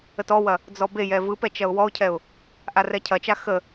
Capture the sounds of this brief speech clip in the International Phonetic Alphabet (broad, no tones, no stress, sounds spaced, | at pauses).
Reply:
ə t ɔ w ɐ | d͡z ɔ b e j ɛ v ɯ p ɛ t͡ʃ ɐ ʊ̯ w ɔ ʊ̯ cʰ ɛ ʊ̯ | ʔ a r ɛ cʰ ɐ t͡ʃ a x ə